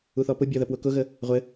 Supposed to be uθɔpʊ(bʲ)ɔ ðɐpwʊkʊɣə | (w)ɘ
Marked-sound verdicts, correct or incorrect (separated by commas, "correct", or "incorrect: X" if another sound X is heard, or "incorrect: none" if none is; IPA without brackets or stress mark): correct, incorrect: ʁʷ